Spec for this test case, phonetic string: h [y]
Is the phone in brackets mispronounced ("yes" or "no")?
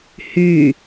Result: no